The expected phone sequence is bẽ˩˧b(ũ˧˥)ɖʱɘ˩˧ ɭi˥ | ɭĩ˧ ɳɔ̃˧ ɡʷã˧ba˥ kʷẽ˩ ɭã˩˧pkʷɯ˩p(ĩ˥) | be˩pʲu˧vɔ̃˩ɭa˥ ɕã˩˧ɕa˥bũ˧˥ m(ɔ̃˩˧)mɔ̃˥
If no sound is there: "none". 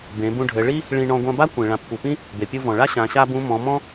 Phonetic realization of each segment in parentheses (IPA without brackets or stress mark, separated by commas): ũ˧, ĩ˥, ɔ̃˩˧